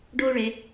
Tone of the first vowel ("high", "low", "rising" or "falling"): high